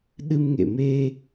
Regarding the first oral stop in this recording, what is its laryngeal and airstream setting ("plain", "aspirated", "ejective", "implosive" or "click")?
implosive